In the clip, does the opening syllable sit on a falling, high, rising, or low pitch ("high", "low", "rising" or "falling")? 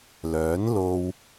rising